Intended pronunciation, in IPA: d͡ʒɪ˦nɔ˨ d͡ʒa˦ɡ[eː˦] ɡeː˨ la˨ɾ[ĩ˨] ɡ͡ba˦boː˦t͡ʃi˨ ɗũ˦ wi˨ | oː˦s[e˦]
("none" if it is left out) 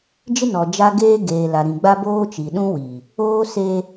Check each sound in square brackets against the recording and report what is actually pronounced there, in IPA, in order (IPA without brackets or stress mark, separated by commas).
eː˦, ĩ˨, e˦